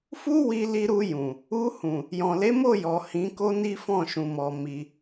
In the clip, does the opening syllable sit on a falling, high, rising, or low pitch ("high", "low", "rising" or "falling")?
high